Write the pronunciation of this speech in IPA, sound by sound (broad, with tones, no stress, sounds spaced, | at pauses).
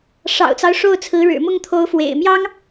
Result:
ʂ ɑ̰˨˩ ʊ̯ t͡s ɑ˦ ʊ̯ ʂ o˥˩ ʊ̯ t͡sʰ ɹ̩˧˥ ɻ ɻ̩˨˩ m ʊ˥˩ ŋ t̪ʰ o˧˥ ʊ̯ f w ḛ˨˩ ɪ̯ m j ɑ˥ ŋ